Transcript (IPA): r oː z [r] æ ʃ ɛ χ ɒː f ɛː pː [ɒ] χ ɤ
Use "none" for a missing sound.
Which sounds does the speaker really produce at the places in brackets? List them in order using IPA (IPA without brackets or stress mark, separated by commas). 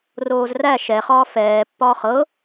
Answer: r, ɒː